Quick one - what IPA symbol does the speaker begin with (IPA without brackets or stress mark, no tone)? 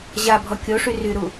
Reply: ʑ